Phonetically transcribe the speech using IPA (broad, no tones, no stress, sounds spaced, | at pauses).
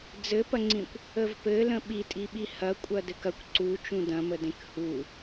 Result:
d͡z ɘ p ɐ ŋ͡ǀ ĩ kʷ | ə v p ɘ l ə̃ ɓ i tʼ i ɓ i h ɐ kʷʼ ɐ d ɘ k ɐ kʷ ǀ u t͡ʃ ũ d ɐ̃ m ə d ẽ k h u